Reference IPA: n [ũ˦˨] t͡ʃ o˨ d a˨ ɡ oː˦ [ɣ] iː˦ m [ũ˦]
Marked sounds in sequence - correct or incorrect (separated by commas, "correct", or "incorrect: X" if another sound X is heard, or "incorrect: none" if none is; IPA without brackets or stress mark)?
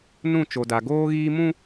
correct, correct, correct